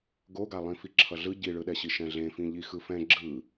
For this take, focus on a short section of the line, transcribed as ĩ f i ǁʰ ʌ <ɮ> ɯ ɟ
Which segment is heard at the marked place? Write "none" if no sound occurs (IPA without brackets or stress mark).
ɮ